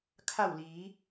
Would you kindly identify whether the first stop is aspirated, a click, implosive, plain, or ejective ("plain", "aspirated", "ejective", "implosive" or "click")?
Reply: aspirated